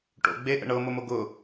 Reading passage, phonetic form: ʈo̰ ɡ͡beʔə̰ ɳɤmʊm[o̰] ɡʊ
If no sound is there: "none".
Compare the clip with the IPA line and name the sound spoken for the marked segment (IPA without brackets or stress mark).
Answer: o